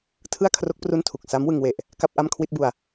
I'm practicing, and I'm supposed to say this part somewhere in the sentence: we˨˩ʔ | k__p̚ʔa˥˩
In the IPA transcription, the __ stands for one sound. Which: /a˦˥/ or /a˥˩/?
a˥˩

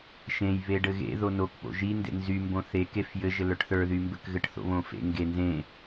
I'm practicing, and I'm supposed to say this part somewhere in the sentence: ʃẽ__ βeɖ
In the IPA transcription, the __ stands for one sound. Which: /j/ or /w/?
j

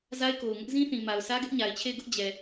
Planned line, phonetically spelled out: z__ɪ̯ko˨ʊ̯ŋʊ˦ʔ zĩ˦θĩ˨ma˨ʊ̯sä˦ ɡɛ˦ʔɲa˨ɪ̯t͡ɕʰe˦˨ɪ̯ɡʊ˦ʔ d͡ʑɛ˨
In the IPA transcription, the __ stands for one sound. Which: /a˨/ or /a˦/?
a˦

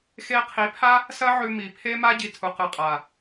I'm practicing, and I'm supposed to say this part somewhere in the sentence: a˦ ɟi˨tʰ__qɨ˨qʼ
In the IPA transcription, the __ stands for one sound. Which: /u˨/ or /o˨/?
u˨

